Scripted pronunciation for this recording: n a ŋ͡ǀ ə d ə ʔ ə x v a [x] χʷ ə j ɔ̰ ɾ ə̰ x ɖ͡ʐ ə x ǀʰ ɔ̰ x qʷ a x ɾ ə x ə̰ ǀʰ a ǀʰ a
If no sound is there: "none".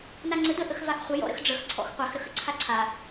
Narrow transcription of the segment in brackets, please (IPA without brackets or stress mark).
x